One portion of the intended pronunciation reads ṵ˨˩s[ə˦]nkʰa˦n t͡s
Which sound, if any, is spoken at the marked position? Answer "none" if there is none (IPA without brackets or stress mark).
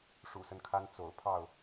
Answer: ə˦